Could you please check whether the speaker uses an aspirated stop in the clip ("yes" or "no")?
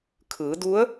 yes